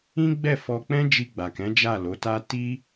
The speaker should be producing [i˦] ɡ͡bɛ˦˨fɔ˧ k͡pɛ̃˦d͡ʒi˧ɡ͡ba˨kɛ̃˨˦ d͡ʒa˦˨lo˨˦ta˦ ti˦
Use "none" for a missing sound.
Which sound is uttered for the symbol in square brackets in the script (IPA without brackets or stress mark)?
ĩ˦